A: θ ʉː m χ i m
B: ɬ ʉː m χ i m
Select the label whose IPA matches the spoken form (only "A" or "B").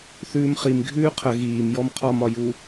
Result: A